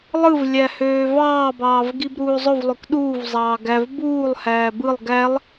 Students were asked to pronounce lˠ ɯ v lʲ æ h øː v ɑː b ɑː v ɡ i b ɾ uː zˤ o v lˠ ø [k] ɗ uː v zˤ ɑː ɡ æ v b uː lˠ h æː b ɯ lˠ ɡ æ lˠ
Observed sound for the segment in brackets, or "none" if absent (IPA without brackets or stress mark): k